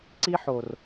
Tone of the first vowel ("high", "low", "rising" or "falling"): high